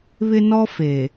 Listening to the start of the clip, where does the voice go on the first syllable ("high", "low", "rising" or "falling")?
high